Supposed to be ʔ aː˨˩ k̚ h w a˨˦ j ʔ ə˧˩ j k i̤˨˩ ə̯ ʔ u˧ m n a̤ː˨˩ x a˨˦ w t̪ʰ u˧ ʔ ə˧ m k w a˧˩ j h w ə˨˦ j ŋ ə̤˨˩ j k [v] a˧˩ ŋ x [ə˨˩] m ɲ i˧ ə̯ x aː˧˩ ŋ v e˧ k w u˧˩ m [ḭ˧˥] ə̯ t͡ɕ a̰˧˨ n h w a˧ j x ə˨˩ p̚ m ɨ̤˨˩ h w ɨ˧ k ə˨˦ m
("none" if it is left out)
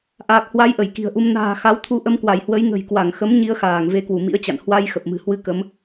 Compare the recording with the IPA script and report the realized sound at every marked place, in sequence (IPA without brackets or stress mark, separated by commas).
w, ə˨˦, ḭ˧˥